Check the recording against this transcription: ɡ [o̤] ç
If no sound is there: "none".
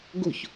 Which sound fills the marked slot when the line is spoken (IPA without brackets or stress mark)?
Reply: o̤